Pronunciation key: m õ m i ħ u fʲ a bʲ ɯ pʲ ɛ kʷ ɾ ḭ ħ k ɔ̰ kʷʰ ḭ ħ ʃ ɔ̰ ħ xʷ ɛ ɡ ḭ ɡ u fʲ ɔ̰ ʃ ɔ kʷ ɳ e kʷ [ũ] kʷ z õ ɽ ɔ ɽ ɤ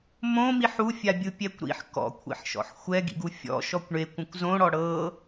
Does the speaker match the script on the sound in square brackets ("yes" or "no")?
yes